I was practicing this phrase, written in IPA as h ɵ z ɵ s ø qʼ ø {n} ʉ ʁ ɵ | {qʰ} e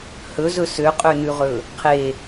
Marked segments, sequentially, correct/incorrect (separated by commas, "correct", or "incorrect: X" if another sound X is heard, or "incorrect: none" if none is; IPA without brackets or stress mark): correct, correct